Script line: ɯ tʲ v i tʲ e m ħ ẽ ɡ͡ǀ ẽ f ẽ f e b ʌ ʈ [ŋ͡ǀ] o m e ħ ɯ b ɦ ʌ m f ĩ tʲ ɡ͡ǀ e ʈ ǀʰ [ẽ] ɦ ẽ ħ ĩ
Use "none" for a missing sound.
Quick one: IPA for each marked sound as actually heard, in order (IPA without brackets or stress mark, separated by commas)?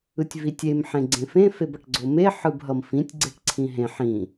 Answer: ɡ͡ǀ, ĩ